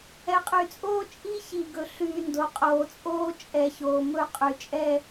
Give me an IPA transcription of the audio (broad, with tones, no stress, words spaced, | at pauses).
ɛ˨qʼy˨t͡sʼoː˦ t͡ʃʼi˦çi˨ɡɵ˨˦ ɬyː˨ ndo˨qʼoː˨t͡sʼoː˦ t͡ʃʼɛ˨çoː˨ mɵ˦˨qʼy˨t͡ʃʼɛ˦